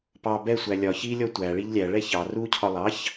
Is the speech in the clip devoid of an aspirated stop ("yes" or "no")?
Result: no